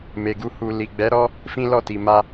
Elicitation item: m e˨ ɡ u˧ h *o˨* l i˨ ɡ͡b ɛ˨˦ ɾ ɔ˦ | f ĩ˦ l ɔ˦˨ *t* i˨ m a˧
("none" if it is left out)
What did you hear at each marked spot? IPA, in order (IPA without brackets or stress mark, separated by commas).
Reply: u˨, t